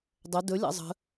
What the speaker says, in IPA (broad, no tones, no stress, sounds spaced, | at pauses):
dˤ ə d ɵ lʲ ɑ̰ zˤ ə̤